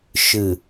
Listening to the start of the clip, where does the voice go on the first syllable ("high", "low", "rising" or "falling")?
low